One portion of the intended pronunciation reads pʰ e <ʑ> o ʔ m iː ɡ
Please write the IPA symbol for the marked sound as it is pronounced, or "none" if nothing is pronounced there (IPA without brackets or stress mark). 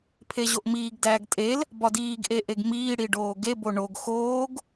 ʑ